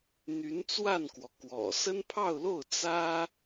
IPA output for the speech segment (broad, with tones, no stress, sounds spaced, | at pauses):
n̪ y˧˥ n t͡s w a˥˩ n k w ɔ˩ k w ɔ̰˨˩ s ə˥ n pʰ ɑ˥˧ ʊ̯ l o˥˩ ʊ̯ t͡s ä˥